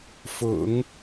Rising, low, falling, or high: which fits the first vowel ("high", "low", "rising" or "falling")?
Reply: low